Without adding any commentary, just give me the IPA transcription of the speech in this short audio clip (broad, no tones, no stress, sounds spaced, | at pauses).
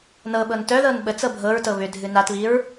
n ɤ ɓ ɤ n t œ ð ɤ n ɓ ə t͡s ɤ bʱ ɤ ɹ t ɤ β ʏ dʱ ɨ n a t β i ɹ